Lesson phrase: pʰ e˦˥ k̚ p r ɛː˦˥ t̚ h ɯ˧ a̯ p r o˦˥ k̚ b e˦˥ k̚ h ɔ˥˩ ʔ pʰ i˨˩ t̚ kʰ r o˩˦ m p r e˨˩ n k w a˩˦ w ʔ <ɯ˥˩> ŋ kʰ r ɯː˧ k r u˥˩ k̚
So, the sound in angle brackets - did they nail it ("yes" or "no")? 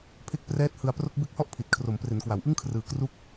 yes